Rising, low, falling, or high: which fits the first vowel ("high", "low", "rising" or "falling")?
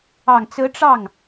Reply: low